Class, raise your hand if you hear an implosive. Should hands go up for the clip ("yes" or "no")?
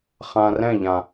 no